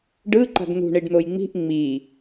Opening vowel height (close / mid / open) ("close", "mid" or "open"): close